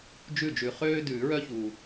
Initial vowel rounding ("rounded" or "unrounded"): rounded